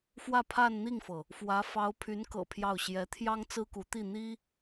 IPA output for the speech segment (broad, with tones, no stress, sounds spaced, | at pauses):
f w ä˥˧ pʰ a˥˧ n n̪ i˥˩ ŋ f ɤ˩ | f w ä˧˥ f ɑ˧˥ ʊ̯ pʰ y˧˥ n k ɤ̰˨˩ pʰ j ɑ˥˩ ʊ̯ ɕ j ɛ˧˥ t̪ʰ j ɑ˥ ŋ t͡s ɹ̩˥ k u˧˥ t̪ i˥˩ n̪ i˥